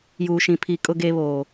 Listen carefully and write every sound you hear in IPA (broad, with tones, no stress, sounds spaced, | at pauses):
j uː˨ ʃ ĩ˨ pʰ i˨ kʼ ʊ˨ ɡ e˨ β oː˨